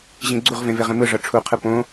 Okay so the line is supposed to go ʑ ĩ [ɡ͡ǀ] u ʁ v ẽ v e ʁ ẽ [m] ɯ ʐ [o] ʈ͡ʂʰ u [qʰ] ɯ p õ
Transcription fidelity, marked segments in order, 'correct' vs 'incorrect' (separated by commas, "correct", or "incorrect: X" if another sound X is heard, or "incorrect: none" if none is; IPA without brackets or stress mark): correct, correct, incorrect: ɤ, correct